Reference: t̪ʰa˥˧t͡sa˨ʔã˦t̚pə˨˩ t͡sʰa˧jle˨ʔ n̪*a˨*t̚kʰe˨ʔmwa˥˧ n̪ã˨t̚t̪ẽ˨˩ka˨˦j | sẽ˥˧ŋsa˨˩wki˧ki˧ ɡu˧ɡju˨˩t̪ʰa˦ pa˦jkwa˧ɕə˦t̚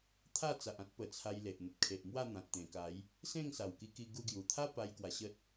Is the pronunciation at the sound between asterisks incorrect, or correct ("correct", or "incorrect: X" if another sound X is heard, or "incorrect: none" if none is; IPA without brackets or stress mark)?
incorrect: ə˨